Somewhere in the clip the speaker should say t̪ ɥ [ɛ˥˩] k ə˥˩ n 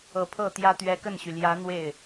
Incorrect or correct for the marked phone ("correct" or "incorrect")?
incorrect